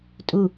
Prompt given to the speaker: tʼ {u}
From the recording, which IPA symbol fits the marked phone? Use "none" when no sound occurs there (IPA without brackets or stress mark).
u